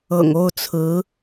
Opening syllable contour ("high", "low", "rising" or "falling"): low